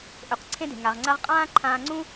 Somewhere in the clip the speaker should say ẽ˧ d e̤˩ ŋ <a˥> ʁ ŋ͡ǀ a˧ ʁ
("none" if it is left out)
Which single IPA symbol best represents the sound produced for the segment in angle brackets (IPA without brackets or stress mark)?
a˩